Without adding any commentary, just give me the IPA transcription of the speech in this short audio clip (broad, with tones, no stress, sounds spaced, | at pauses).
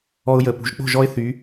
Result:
ɔ˦ ʊ̯ j ə˧˩ p ṳ˨˦ ʒ k͡p o̤˥˨ ʒ ɔ˦ ɪ̯ θ y˨˦